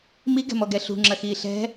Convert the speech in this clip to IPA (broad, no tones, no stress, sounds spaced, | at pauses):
m i ɡ ɛ̤ m ɔ ɡ ɛ ɬ ṳ ŋ͡ǁ ɐ x iː ɬ ɛ̤